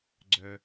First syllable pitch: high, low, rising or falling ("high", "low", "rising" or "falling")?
low